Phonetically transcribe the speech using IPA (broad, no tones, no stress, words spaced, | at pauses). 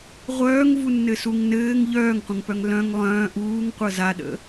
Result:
ʁʷœːŋvunːɘsuŋ nɘːŋ ʎœːŋqʷə̃ŋpœŋ lœ̃ŋ lˠœ̃ː ʔuːŋqʷɤ zaɗə̰